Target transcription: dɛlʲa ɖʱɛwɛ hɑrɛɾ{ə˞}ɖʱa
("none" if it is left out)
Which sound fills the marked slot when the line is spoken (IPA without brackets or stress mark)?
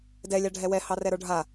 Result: ə˞